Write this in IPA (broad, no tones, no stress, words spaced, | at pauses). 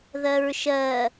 ðɜɹʃɜ